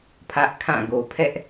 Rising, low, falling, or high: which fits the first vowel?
high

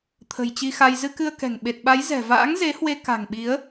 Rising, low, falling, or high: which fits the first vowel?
low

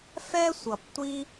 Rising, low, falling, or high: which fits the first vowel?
high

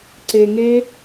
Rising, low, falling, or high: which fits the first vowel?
low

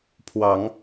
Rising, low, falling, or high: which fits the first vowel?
rising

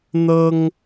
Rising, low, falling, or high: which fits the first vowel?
high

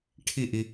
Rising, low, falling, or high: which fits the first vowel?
falling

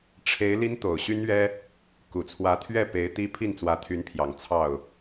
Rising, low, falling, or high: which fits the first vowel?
rising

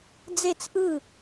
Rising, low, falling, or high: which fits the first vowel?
falling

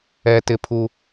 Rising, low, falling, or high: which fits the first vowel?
high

